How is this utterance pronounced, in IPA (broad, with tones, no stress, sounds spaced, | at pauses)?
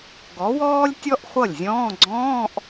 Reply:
ɡ ɔ˨˥ w ɔː˥ lʲ tʲ ɔ˥ ʔ χʷ ʌ˥˩ lʲ zʲ ɔ̃ː˧˥˧ ɡ͡ǀ ɔ̃ː˧˥˧ ʔ